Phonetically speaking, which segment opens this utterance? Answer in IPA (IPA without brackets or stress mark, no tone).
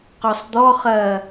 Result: q